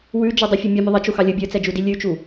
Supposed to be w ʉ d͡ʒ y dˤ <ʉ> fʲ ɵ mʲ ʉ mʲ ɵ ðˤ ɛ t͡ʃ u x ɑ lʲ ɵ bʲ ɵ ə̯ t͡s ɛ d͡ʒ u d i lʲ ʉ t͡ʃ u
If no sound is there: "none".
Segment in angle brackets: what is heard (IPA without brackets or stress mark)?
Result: ʉ